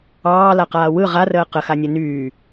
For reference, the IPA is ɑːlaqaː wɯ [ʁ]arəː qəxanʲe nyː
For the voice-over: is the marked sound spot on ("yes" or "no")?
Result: yes